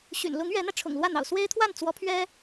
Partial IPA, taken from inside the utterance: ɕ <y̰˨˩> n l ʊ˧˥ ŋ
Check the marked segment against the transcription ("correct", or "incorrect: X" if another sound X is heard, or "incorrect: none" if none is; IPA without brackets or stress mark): correct